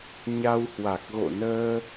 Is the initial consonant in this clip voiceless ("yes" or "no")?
no